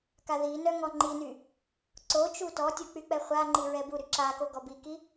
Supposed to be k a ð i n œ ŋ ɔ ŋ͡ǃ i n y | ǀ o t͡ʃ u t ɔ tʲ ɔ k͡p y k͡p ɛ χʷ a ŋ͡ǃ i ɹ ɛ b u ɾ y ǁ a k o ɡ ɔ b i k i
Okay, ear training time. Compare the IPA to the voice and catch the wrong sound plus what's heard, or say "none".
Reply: none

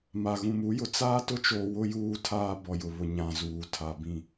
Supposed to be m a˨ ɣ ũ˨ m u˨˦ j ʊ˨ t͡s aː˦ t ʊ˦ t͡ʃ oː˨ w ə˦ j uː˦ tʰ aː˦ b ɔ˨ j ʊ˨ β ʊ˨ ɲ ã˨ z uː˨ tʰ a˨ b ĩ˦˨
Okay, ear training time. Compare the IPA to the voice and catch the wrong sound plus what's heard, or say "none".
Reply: ə˦ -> ʊ˦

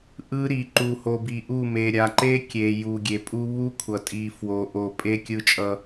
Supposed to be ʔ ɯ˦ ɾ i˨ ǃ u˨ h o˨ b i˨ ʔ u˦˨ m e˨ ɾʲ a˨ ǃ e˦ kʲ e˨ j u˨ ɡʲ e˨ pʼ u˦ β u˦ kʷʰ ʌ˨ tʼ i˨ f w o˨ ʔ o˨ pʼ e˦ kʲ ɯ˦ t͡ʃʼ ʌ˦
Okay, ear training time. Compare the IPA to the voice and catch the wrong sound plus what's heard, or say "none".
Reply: none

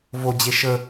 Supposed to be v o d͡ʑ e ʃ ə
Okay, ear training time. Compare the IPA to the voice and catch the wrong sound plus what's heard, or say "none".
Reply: none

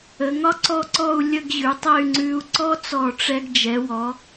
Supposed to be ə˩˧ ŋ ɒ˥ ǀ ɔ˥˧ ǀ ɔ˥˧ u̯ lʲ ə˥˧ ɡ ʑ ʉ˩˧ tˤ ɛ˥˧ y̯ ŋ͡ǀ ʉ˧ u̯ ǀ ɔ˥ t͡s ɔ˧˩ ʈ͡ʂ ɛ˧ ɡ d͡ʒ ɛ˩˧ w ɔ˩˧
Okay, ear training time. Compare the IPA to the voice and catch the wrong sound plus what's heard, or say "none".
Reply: none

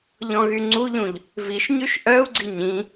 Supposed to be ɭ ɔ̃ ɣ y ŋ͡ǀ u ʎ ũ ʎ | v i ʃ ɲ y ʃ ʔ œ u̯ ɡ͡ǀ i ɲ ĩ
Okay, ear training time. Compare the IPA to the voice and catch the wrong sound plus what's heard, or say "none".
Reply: ɭ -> ʎ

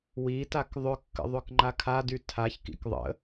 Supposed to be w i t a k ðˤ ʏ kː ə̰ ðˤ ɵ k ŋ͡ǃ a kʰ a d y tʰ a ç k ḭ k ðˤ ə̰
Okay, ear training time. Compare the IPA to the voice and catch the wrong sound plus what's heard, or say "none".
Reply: none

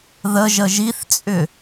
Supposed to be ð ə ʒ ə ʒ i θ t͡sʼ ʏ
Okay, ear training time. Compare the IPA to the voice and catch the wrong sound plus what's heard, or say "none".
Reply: none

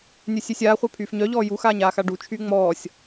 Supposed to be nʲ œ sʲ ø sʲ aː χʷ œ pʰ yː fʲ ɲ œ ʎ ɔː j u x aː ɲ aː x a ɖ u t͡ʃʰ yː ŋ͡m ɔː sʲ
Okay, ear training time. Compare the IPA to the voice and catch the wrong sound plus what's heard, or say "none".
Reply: fʲ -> f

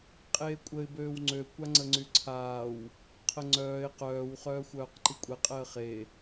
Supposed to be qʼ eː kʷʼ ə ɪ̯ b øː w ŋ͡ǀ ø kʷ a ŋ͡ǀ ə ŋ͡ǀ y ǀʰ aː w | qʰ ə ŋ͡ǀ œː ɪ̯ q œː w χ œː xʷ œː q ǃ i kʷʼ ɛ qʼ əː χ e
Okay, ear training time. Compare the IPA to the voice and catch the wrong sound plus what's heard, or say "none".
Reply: none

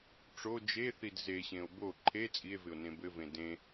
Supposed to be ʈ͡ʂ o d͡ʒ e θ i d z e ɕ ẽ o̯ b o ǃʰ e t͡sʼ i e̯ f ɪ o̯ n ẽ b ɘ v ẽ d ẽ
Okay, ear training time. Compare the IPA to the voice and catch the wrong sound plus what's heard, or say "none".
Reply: f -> v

